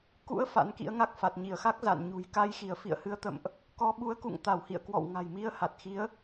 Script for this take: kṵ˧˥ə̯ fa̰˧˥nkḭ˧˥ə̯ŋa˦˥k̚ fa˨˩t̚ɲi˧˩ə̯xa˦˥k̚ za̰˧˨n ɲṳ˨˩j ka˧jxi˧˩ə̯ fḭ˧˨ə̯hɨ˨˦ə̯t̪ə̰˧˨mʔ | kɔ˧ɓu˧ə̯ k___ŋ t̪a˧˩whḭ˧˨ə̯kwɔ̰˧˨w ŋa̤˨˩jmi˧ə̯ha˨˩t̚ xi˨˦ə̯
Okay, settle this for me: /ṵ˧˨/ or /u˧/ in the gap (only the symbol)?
ṵ˧˨